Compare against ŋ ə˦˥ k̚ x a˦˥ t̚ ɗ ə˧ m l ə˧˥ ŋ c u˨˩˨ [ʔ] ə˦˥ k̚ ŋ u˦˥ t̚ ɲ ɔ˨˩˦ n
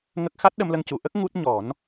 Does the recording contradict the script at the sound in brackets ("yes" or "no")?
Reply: no